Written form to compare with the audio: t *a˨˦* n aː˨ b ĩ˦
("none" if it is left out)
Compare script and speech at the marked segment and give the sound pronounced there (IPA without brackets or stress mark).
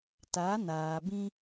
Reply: a˨˦